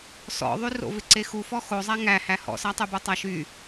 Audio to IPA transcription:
s ɔ̰ ðˤ y r o̰ v ɪ ǀ e x u f ɔ x o zˤ æ ŋ æ h æ h ɔ̰ s a tˤ y b u tˤ æ ʃ y

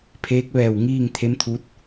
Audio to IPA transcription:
pʰ eː˧˥ k̚ ʋ ɛː˧˩ w ŋ iː˥˨ ŋ t̪ʰ e˧˥ m t̪ʰ u˧˥ t̚

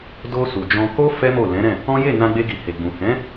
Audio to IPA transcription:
d o˧ s u˨ d͡ʒ ɔ̃˧ k o˦ f ɛ˦ m o˦˨ l ɛ̃˨˦ ɾ ɛ̃˦˨ | ɔ̃˦ j e˦˨ n ã˧ ɡ͡b e˧ ɡ i˨ h e˨ ɡ͡b ũ˨ h ɛ̃˨˦

